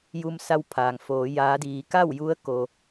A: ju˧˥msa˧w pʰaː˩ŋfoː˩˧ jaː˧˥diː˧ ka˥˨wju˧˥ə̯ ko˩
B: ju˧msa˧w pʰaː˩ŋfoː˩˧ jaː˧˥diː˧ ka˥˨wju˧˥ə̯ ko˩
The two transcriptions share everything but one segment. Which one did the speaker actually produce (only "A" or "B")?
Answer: B